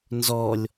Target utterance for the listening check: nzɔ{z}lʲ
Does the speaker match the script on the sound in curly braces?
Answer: no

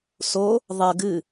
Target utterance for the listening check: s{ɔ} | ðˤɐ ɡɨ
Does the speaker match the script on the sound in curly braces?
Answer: no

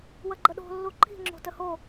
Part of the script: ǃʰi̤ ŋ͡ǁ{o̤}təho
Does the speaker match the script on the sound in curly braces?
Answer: yes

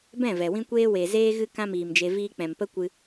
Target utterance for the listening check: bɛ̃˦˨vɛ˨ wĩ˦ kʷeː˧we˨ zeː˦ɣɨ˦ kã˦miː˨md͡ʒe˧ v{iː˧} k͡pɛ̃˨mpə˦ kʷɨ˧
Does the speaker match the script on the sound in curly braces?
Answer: yes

